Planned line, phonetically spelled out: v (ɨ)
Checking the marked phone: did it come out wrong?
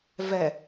yes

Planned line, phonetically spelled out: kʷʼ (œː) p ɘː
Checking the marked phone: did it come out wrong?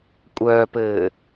no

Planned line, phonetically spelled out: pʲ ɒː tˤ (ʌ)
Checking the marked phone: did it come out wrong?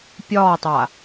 yes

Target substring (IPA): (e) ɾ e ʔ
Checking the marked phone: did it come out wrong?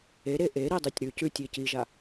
no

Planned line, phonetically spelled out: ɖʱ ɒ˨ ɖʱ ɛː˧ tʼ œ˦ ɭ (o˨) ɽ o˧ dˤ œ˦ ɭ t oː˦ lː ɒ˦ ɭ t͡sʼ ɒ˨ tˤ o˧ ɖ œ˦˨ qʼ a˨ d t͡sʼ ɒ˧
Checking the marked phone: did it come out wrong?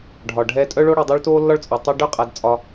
yes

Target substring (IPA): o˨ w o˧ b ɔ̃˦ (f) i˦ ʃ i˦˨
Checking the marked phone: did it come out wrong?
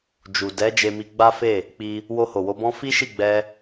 no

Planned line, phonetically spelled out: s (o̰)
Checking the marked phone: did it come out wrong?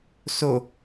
yes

